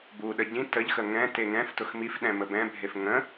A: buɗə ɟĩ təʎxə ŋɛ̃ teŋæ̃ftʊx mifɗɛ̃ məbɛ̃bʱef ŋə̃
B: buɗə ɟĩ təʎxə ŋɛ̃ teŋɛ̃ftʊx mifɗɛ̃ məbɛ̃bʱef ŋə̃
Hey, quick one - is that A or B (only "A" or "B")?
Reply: B